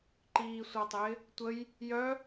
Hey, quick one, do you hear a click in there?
yes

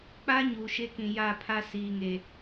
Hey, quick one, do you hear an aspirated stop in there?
yes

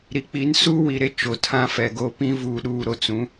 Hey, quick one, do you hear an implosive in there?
yes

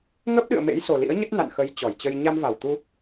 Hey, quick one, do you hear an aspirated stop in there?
no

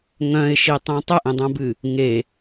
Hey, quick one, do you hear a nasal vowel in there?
yes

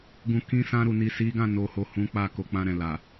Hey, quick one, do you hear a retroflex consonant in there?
no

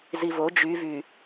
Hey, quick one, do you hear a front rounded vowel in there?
yes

